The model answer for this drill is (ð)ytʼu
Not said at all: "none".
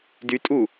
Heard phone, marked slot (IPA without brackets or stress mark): d